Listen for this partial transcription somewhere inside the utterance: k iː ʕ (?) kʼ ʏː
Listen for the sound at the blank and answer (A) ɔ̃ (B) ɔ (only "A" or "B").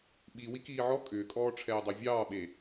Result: B